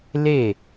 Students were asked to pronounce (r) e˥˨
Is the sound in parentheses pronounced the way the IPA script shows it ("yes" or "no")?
no